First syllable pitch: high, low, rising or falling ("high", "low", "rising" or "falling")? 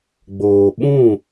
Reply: low